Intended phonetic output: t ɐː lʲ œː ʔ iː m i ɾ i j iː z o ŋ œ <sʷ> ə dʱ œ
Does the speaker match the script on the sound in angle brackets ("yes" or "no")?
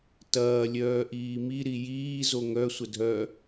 yes